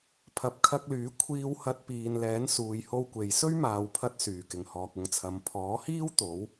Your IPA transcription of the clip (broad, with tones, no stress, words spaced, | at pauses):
pʰɐ˨˥p̚kʰɐ˧k̚lyː˨˥ kʷʰiː˧whɐ˧t̚piː˨nlɛː˨˥n suː˨jho˧wkʷe˨j sɵ˥ɥmaː˨wpʰɐ˧t̚ syː˨˩kɪ˨˩ŋhɔː˨k̚ ʊ˨ŋt͡sʰɐ˨˧m pʰɔː˨˥hiː˥w t̪o˨˥w